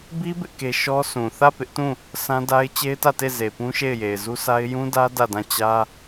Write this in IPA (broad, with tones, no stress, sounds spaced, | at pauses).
b i˦ b ɪ˦ ʔ k e˦ ʃ ɔ˦ s ũ˨ θ ä˦˨ p ɪ˦ ʔ t ũ˦˨ | s ã˦ d a˦ ɪ̯ t͡ɕ e˦ ɪ̯ t ä˦˨ t e˦˨ z e˨ p ũ˦ ʃ e˦˨ ɪ̯ j e˨ ɪ̯ z u˦ s a˦ ɪ̯ j ũ˦ d ä˦ d ä˦˨ d ã˦˨ t͡ɕ ä˦